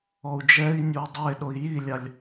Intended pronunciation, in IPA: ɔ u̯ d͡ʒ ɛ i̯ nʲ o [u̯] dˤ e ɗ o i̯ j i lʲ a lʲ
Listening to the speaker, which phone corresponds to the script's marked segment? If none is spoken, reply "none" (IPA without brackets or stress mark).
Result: u̯